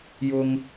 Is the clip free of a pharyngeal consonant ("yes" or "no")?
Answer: yes